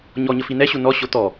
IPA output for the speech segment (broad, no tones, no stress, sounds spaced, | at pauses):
ɲ ɔ ɲ ə f i n ɛ ɕ u n ɔ ɕ o t̪ ɔ